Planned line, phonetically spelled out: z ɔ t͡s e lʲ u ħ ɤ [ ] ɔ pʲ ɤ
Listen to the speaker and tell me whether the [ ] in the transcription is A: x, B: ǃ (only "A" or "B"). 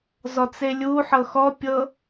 A